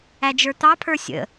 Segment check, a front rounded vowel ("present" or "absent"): absent